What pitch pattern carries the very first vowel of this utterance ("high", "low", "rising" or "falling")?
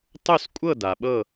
falling